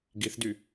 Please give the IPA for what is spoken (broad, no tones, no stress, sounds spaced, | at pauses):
ɡ i θ d y